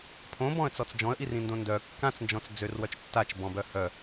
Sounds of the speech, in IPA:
pʰõbɔ̃ə̯t͡sɔt͡s d͡ʒɔ̃ə̯ʔirĩndõ ndœ kːãt͡snd͡ʒɔ̃t͡s d͡zørwœt͡ʃ tːat͡ʃbɔ̃bœ hœ

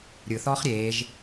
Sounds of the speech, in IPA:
ɾʲɯθɔːχ ɾʲeːʒ

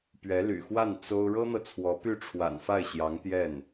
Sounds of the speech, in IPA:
pɥɛ˧˥ly̰˨˩ xwa˥˩n t͡so˥ʊ̯ ɻɤ˥n̪ɤ˨t͡sʰwɔ˧˥ py˥˩ʈ͡ʂʰwa̰˨˩nfa˥˩ɪ̯ɕjɑ˧˥ŋ t̪jɛ˥˩n

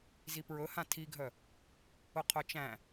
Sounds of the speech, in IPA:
zipɹɵhã tʰiɡʱœ | ʊqʰœt͡ʃæ̃

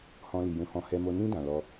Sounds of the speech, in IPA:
hɔ̃˧li˨jũ˧hɔ̃˧ hɛ˧mo˧ nĩ˧ dã˨lɔ˧

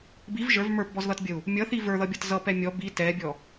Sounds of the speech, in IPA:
biv ʒə˞v mə˞pbɔzðʌtbʲəu̯ | mʲʌθi və˞ðʌbʲʌt zʌpɛ mʲɔ bi tɛbʲɔ

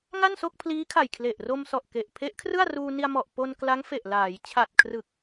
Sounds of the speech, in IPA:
ŋa˥˩nso˥˩k̚pʰliː˦˥kʰa˨˩j kʰle˨˩ʔro˧msɔ˨˩ʔ ke˨˩ʔ pʰe˦˥ʔkʰrɯ˥˩a̯ ruː˧ni˧a̯ mɔ˨˩ʔ po˧n kla˦˥ŋfe˨˩ʔ laː˩˦j t͡ɕʰa˨˩t̚ kʰrɯ˨˩k̚

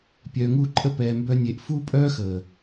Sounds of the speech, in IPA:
pʲœː˧ŋuː˦ǃʼə˦ pɛː˧mbœ˦nʲe˧ʔ fuː˦pʼœː˦xəː˨

